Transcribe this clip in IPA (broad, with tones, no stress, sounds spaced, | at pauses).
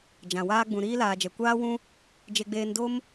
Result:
d͡ʒ ã˨ w aː˧ ɡ͡b ũ˨ ɾ iː˧ l aː˨ d͡ʒ ɛ˨ kʷ aː˧ w ũ˧ | d͡ʒ e˨ ɡ͡b eː˨ n d o˧ m